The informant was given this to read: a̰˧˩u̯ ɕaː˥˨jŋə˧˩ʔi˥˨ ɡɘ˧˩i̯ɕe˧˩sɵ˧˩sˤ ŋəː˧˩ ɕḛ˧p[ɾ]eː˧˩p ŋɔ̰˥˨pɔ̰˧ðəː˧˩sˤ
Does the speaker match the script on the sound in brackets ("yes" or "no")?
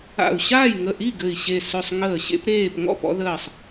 yes